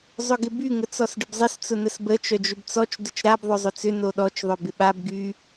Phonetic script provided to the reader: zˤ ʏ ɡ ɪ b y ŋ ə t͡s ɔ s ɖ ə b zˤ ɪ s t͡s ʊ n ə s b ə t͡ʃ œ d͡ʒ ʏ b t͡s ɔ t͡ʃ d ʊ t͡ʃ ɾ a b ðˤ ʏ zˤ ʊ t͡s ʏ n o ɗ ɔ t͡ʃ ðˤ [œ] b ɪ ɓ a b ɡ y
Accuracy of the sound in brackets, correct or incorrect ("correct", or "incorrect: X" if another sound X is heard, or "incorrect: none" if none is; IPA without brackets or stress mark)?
correct